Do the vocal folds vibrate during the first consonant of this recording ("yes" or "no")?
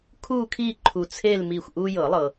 no